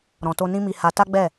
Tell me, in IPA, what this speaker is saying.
ɾ ɔ̃˨ t o˧ n ĩ˦ m i˧ h a˧ t a˦ ɡ͡b ɛ˦˨

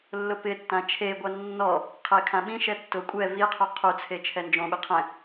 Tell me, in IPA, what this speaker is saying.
lː ʊ p ɪ tː ã t͡ʃʰ e ɡʷ a nː ɔ | qʰ e kʰ ã ɓ ĩ ʃ ɛ tː ʊ kʷʼ ɛ v i qʰ o qʰ u t͡sʰ e t͡ʃʰ ɛ n d͡ʒ õ ɓ ɪ qʰ ɛ̃

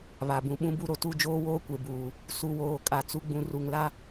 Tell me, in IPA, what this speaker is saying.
β a˨ b ũ˨ ɓ ũ˦ b u˦ ɾ o˨ t u˦˨ d͡ʒ oː˦ w oː˦ kʷ e˨ b uː˨ | s u˨ w oː˨ kʼ a˨ t͡s u˨ ɡ͡b ũ˨ r u˨ ŋ l a˦

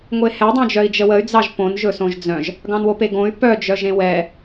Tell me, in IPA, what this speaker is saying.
ŋʷ e h ɛ dˤ œ̃ d͡ʒ œ i̯ d͡ʒ ə w ə y̯ d͡z ɑ ʒ p õ n ʒ ɵ s õ ʒ d͡z œ̃ ʒ | ɡ ɑ̃ n w o p e ɡ õ y̯ p œ d͡ʒ œ ʒ ẽ w ɛ

